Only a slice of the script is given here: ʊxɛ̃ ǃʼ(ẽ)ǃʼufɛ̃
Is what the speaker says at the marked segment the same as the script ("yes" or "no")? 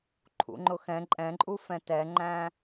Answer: no